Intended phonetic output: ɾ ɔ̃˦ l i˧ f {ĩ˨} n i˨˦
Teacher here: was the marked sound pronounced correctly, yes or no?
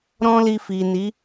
no